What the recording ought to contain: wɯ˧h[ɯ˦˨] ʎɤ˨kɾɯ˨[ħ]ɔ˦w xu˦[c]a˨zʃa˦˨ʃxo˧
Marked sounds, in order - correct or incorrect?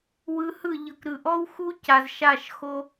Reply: correct, incorrect, correct

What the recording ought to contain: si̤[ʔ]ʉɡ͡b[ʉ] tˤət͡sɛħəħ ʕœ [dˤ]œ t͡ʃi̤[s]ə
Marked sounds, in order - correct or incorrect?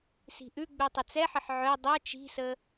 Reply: correct, correct, correct, correct

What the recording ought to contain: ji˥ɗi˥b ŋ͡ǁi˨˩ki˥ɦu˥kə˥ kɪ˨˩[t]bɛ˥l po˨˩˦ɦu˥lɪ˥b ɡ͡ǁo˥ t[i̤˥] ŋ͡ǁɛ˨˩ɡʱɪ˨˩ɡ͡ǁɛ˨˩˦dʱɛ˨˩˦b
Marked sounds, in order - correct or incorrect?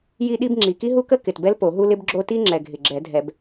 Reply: correct, incorrect

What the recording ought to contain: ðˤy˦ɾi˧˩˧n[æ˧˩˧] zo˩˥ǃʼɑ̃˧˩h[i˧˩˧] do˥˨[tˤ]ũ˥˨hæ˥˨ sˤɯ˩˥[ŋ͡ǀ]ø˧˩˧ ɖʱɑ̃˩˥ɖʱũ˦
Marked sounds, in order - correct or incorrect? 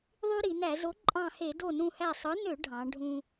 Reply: correct, incorrect, incorrect, incorrect

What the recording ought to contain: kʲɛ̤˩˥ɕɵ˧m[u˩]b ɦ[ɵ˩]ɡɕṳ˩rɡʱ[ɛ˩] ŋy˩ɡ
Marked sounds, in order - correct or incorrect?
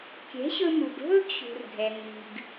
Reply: correct, incorrect, correct

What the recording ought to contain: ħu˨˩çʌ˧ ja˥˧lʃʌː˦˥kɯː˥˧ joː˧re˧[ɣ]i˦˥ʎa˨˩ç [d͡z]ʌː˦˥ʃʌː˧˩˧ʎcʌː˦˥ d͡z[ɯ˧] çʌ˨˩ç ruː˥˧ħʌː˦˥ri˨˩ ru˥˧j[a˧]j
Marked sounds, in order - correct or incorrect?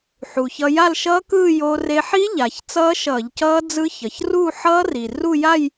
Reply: incorrect, incorrect, incorrect, incorrect

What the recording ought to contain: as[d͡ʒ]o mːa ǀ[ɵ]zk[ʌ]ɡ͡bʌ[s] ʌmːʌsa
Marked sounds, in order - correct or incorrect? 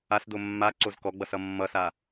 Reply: incorrect, incorrect, incorrect, correct

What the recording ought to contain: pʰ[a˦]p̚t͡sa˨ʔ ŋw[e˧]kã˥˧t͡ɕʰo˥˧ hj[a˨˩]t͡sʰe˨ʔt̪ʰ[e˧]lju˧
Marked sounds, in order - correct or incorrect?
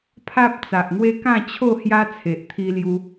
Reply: correct, incorrect, incorrect, incorrect

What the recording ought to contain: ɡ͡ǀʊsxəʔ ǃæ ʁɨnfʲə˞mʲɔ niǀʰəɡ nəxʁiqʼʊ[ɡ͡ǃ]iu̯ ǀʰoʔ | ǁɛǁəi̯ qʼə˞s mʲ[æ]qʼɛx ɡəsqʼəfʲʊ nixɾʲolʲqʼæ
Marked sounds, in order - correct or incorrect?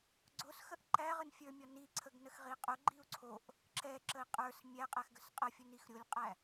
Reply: correct, correct

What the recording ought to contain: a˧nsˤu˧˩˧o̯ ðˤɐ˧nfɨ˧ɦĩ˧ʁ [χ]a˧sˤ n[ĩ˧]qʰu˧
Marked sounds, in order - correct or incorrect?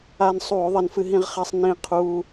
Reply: correct, correct

